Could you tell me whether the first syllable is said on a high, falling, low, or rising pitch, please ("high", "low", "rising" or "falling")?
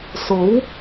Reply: rising